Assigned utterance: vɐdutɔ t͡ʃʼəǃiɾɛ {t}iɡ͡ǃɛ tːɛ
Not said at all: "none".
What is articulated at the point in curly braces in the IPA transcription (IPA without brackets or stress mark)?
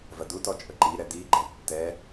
d